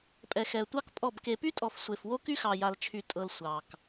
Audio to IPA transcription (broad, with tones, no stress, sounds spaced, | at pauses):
pʼ ɛ˨ x ɛ˨ ə̯ tʷ ɑ˦ k pʼ ɔ˦˨ b k e˨ p y˦ tʼ ɔ˨ f sʷ e˨ f w o˦ k y˦ x ɑ˨ j a˨ l t͡ʃʰ y˨ tʼ ɤ˨ l sʷ ɑ˨ k